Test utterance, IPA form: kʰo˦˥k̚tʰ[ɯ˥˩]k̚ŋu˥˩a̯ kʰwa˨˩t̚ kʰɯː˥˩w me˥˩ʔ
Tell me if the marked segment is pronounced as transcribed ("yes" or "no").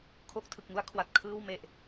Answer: no